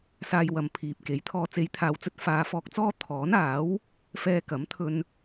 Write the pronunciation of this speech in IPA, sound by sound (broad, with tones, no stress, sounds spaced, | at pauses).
s aː˧ j w ɐ˨ m pʰ iː˨ p̚ k e˨˥ j t̪ʰ ɔː˨ t͡s e˨˧ j t̪ʰ aː˨ w t͡s ɵ˧ t̚ f aː˨˧ f ɔː˧ k̚ t͡s ɔː˥ t̪ʰ ɔː˨˥ n aː˨˥ w | f ɛː˧ k ɐ˨˥ m t̪ʰ ɵ˧ n